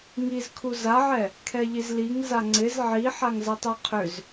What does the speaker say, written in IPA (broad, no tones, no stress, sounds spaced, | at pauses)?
ŋ i z kʰ u z a ʕ ɛ | kʰ ɛ ʎ i z l i ŋ z a ŋ͡ǀ ɪ z ʕ i ħ a ŋ z ɐ tˤ ɛ qʰ ʏ z